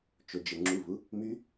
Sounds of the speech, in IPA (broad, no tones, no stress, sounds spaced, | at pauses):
t͡ʃ o d͡ʒ ə ŋ͡ǁ u v u | m y